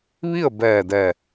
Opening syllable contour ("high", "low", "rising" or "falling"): falling